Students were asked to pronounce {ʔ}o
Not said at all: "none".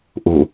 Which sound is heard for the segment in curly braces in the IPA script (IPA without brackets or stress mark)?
ʔ